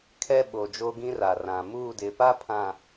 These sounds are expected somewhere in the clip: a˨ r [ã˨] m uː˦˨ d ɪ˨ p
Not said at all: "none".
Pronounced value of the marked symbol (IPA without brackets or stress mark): ã˨